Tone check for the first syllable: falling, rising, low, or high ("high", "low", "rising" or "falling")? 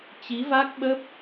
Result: rising